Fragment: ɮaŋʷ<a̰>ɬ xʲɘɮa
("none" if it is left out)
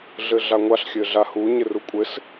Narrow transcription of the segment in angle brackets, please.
a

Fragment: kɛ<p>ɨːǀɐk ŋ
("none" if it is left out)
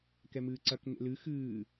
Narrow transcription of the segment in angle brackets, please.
m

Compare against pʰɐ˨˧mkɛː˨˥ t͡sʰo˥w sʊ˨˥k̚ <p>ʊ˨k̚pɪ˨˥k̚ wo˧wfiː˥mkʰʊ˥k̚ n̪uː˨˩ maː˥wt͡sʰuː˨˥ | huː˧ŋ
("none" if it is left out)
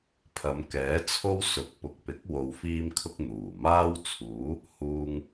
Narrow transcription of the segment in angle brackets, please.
p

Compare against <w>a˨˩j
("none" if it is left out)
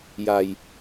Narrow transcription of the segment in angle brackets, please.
j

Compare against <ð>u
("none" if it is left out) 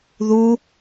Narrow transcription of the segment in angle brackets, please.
ð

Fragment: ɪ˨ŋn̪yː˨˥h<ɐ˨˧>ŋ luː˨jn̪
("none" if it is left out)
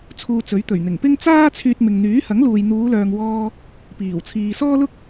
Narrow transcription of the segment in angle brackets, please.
ɐ˨˥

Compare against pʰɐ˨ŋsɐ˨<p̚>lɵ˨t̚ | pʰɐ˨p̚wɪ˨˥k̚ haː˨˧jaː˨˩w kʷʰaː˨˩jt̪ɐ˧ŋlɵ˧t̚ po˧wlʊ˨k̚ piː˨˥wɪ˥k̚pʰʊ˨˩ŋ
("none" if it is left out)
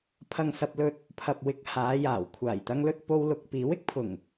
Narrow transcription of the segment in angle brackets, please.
p̚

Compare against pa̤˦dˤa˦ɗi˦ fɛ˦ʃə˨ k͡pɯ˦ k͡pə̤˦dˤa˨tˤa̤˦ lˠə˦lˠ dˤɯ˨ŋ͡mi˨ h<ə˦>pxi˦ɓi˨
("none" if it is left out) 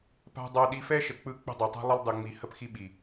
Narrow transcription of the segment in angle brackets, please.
ə˦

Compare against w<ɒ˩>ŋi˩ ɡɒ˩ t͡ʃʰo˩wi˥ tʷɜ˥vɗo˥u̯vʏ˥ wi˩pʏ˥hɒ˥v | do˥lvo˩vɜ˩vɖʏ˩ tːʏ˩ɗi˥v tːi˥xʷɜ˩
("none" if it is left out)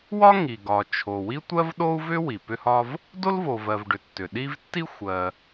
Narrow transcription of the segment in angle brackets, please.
ɒ˥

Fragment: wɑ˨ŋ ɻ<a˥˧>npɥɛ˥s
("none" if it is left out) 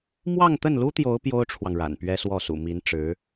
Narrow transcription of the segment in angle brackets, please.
a̰˨˩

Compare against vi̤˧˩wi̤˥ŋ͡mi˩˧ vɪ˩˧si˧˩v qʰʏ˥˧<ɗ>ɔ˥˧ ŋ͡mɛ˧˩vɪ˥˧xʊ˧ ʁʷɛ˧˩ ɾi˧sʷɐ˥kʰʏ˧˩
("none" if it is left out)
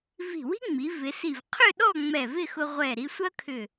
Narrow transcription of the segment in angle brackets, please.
ɗ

